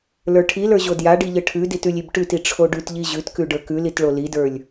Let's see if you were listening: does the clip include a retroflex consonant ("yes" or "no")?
yes